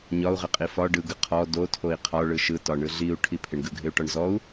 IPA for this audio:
ɲ ɒ u̯ ʁ ɪ qʼ i f ɒ ɖ ɯ ɡ ɯ qʰ ɔ d o tʰ o i̯ qʰ ɒ ɭ ɯ ʃ ɯ t ɒ ɳ ɯ ɮ i u̯ ʈʰ i pʰ ɪ ɳ ɡ ɯ ɡʱ ɪ u̯ ʈ ɒ ɳ z ɔ u̯

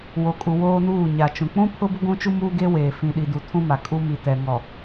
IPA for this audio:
w o˨ kʼ u˨ w oː˦ n uː˦˨ ɲ a˨ t͡ʃ ũ˨ k͡p ũ˦ pʰ ʊ˦ b ʊ˦ ɡʷ ũ˦ t͡ʃ u˦ m uː˦ ɡ e˦ w eː˨ f ĩ˨ ɗ i˨ d u˨ tʰ ũ˦ m a˨ kʼ u˦ m i˨ t ɛ˨ ŋ ɔ˨

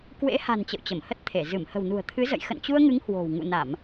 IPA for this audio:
k w ḛ˧˥ h a̤˨˩ n t͡ɕ ə̰˧˨ w t͡ɕ ə˧˩ m h ə˦˥ t̚ t̪ʰ e˧˩ z ɨ˧˩ m h ə̤˨˩ w n ṳ˨˩ ə̯ t̪ʰ ɨ˨˦ z ə̰˧˨ j x ə̰˧˨ n t͡ɕ u˧ ə̯ ŋ ɨ˨˦ ŋ h w o̤˨˩ w ŋ ṵ˧˨ n a˧˩˨ m

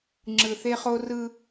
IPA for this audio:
ŋ͡ǁ ɯ˨ θ e˦ χ o˦ r ɯ˦

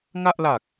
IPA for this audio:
ŋ a˥˩ ʔ l a˨˩ k̚

